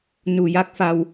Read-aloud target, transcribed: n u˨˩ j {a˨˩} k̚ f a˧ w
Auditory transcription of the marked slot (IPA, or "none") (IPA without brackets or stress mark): a˦˥